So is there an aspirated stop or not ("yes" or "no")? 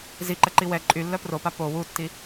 no